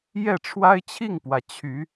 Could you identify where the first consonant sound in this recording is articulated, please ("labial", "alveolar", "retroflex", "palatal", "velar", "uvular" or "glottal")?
palatal